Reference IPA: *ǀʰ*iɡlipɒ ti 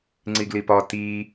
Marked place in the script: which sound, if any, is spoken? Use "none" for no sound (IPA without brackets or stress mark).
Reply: ŋ͡ǀ